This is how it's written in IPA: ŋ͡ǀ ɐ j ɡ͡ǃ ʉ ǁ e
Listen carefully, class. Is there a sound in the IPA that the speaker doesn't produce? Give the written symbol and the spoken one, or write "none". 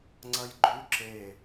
none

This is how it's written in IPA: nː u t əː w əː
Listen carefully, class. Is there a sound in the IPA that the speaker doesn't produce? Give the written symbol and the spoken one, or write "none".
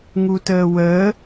nː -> ŋ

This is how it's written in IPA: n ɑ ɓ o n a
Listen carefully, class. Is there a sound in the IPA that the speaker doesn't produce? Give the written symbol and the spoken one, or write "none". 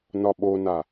ɑ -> ɒ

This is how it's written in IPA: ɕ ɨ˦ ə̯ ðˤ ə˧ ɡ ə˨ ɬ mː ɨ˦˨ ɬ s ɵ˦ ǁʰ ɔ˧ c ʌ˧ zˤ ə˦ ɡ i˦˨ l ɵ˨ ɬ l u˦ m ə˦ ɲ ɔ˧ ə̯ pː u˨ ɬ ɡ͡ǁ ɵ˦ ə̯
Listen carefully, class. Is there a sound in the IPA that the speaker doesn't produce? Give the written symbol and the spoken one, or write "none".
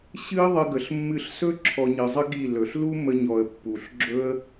c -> ɲ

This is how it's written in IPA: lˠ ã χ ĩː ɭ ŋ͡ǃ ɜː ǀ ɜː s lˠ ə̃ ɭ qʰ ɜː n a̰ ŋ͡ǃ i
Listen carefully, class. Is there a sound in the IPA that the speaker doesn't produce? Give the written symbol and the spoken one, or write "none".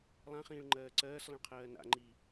none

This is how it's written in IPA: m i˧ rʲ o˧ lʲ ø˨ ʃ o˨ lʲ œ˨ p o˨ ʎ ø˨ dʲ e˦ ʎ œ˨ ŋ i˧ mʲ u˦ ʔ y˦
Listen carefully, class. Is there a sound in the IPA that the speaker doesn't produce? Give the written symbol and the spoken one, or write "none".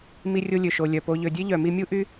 ŋ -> m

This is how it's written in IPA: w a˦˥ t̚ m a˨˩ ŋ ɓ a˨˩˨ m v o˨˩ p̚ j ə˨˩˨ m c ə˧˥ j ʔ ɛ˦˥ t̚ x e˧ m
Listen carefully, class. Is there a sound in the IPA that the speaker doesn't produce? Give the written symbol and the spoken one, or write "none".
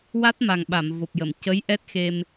none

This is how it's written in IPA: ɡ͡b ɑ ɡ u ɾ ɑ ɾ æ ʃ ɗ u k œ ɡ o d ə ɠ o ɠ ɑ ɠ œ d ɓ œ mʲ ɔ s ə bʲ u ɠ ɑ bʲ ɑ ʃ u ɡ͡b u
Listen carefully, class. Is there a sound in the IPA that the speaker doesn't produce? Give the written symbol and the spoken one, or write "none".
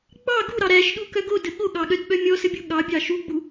none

